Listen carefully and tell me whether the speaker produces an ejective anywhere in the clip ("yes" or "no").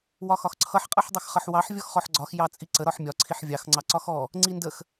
yes